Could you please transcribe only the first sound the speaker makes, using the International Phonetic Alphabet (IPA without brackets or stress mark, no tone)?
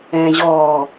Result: ɛ̃ː